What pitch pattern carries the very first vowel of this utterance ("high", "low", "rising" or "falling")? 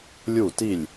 falling